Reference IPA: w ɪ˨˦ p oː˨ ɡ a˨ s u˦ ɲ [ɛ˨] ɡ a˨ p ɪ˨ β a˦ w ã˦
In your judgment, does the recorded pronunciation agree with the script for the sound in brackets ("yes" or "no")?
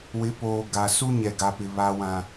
yes